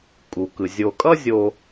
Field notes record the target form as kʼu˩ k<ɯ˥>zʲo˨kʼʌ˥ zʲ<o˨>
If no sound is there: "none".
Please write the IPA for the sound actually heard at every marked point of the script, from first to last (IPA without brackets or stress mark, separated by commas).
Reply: ɯ˩, o˨